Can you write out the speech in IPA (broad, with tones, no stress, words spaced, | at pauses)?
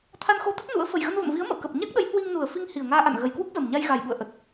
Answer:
t̪ʰa˧nxo˧t̪ə˦˥t̚ nṵ˧˥ə̯ fə˨˩jɣə˧nvə̰˧˨mvi˨˦ə̯ mə̰˧˨wkə˨˩p̚ ɲa˦˥k̚ɗə˨˦j hwi˧ŋnu˨˩ə̯fi˧ŋ hi˨˩ə̯ŋaː˧ʔa̰˧˨n ɣə˨˩jkwu˦˥k̚zə˨˩m ɲa˧jɣa˨˩jɓṵ˧˨ə̯ ʔə˨˩t̚